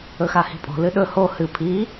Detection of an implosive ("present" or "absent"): present